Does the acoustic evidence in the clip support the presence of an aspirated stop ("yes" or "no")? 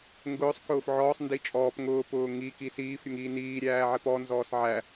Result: no